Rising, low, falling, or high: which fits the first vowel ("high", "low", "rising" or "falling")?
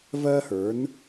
high